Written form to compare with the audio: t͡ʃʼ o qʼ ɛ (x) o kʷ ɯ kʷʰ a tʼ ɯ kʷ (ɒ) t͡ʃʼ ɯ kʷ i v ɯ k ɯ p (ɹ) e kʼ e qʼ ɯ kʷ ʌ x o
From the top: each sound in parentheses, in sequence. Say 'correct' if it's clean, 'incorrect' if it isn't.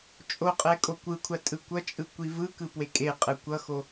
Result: incorrect: kʼ, incorrect: ʌ, incorrect: w

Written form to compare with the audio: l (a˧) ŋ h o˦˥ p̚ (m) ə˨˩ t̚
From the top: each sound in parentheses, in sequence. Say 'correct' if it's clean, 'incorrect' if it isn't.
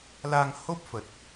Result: correct, incorrect: f

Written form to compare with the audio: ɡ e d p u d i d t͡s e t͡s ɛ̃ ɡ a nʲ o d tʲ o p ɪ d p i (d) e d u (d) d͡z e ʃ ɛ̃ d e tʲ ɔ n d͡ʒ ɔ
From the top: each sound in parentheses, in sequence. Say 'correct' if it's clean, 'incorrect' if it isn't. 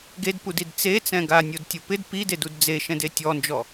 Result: correct, correct

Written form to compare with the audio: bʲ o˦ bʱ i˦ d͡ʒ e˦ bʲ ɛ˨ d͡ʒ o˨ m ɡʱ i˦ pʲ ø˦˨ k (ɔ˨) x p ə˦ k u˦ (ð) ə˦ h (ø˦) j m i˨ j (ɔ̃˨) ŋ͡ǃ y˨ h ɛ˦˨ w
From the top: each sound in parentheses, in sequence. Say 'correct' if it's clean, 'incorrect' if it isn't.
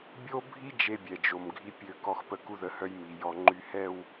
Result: incorrect: ɔ˦, correct, incorrect: œ˦, incorrect: ɔ˨

